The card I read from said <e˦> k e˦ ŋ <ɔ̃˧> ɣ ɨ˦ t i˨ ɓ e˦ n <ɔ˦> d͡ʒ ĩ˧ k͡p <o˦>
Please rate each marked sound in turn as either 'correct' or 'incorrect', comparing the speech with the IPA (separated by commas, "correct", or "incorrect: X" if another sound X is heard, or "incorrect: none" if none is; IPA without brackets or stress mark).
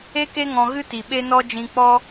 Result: correct, correct, correct, incorrect: ɔ˦